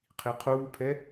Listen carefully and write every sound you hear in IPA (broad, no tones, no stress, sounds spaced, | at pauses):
qʰ i qʰ uː pʰ ɛ